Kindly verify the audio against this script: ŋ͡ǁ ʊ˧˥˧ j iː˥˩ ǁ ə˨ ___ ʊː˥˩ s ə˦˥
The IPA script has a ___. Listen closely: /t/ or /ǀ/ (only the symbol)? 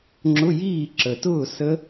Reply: t